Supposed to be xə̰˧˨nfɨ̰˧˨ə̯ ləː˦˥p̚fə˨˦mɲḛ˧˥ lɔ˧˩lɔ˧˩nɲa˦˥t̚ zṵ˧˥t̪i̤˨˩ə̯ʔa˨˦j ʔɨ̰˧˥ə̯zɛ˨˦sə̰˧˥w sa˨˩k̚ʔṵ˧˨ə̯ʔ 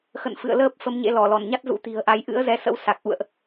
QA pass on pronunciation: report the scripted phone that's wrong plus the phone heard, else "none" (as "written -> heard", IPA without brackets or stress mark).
none